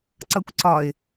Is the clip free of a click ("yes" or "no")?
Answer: no